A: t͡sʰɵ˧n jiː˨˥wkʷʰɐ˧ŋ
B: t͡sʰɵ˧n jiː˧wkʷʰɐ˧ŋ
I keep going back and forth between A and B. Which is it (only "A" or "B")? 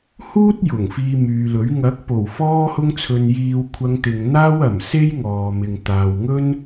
B